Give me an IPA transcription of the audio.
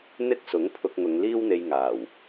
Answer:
n̪ ɪ˥ k̚ s ʊ˨˥ ŋ pʰ ʊ˧ k̚ ŋ ʊ˨˧ ŋ l iː˥ w n̪ e˧ j ŋ aː˨˩ w

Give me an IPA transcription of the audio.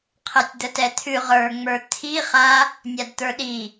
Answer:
qʰ ɛ tʲ d̪ ə t ɛ t̪ʰ ʉ ʁ ə˞ ŋ͡m ə˞ t̪ʰ i χ a | nʲ a d t̪ ə˞ ɗ i

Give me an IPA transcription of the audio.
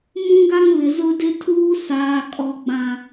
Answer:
m ũ˦ ɡ a˦ ŋ β ɪ˨ z ʊ˦ d ɪ˦ tʰ uː˦ s aː˨ kʼ ɔ˨ ɡ͡b ã˨

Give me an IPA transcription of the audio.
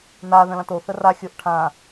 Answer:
n a ð ə̃ l ã t o θ ə r a xʲ o ʔ ʈʰ ã

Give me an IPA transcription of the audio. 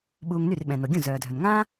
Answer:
ɓ uː˧ ŋ n y˥˩ r ɓ ɛ̃˩ n o˩ ɡʲ ũ˥˩ z œː˩ dʱ œ˩ n ŋ ã˥

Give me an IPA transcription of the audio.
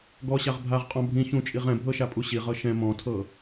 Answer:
ɡ ɔ ɕ a ʁ bʱ a ʁ qʼ ɔ̃ bʱ ĩ ç ũ t͡ʃʼ i ʁ ɛ̃ bʱ ɤ ʃ a pʼ u ɕ i ʁ ɤ ʃ ɛ̃ m ɔ̃ tʰ ɤ

